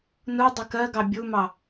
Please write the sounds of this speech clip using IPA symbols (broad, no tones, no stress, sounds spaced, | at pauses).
n u dˤ ɪ k ɜ ɡ ɑ bʲ u m ɑ